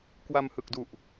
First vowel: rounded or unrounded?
unrounded